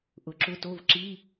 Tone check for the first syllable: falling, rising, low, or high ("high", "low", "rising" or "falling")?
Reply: low